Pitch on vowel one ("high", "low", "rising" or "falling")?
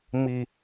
low